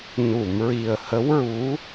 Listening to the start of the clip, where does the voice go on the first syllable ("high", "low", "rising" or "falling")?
low